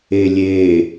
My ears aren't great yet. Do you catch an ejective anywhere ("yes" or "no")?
no